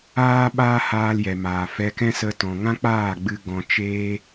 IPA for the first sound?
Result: aː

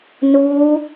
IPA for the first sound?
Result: n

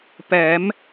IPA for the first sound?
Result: p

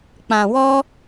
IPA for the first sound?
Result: k͡p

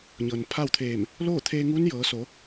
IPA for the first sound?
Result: ɲ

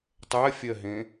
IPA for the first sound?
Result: tˤ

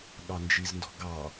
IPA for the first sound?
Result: ɠ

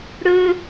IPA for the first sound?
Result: ɽ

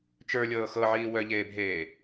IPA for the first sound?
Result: t͡ʃ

